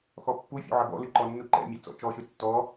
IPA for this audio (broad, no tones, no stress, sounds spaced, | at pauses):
x ɔ pː u fʲ ṵ ʕ ɐ b ɔ̰ l ɨ ǃ ɔ nː u ǃ ɛ̰ mʲ ɛ t͡s ɔ̰ t͡ʃ ɔ ʃ ɨ tː ɔ